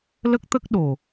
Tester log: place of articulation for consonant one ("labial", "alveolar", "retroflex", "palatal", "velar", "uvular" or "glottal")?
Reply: alveolar